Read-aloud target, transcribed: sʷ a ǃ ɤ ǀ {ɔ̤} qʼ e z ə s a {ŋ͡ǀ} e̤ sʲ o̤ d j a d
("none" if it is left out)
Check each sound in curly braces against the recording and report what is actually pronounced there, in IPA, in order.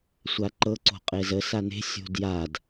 o̤, n

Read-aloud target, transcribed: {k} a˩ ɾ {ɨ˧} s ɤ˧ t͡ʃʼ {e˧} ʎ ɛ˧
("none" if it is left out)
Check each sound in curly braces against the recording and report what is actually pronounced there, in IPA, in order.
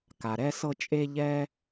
k, ɛ˧, e˧

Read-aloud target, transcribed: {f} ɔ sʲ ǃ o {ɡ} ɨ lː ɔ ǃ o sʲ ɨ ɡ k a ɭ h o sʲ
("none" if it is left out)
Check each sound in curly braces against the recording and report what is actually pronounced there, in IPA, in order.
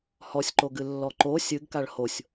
h, ɡ

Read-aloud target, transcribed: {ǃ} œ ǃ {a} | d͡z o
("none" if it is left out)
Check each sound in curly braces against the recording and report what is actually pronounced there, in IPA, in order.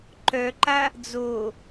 ǃ, a

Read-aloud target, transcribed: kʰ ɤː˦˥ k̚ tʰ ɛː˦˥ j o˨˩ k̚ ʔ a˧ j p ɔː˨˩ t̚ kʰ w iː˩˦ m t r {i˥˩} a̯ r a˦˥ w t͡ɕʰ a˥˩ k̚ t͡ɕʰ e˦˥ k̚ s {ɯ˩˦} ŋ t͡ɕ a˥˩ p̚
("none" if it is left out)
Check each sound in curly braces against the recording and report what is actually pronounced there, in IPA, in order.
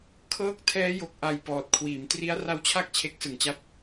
i˦˥, ɯ˩˦

